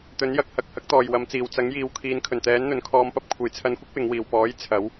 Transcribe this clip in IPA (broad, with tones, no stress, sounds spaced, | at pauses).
t̪ ɵ˨˥ n j ɐ˨˥ k̚ h ɐ˨ k̚ h ɐ˧ k̚ t̪ ɔː˨˩ j w ɐ˨ m t͡s iː˨˩ w t͡s ɐ˨˥ ŋ j iː˨ w kʰ iː˨˧ n kʰ ɵ˨˩ n t̪ ɛː˨˥ n n̪ ɵ˨˧ n kʰ ɔː˧ m p ɐ˥ p̚ kʷʰ e˨˩ j t͡sʰ ɐ˧ n kʷ ɐ˥ k̚ w ɪ˨˧ ŋ w iː˨˩ w p ɔː˨˥ j t͡sʰ ɐ˨˥ w